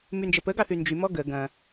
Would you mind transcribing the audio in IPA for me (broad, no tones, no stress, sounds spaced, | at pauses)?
m y n d͡ʒ ə p ə ɡ ɑ θ y n d͡ʒ y m ɔ ɡ ə ɡ ɐ̃